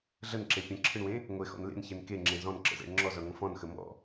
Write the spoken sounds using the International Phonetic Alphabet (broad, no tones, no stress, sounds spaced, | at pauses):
ɮ ə n ǁ e pʲ ə̃ ǁʰ ɨ ɳ w ẽ | ŋʷ e x ɔ̰ n l ḛ n ç e n k e ŋ͡ǁ ẽ z ɔ̃ n ǁ ə̰ z ḛ ɳ ŋ͡ǁ ɔ z ɔ ɳ ŋʷ ə̃ f ɔ̃ n x ə m ɔ̰